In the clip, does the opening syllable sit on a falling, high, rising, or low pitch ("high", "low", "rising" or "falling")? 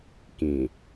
low